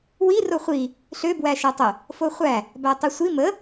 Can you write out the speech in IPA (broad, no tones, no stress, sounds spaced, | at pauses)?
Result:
w i r o χʷ i | ɬ ø b w æ ʃ æ tˤ ə | f o χʷ æ | b æ tˤ i sʷ i m ə